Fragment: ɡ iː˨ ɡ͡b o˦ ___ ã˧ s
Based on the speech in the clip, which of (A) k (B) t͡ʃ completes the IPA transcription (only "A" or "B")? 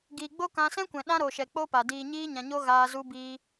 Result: A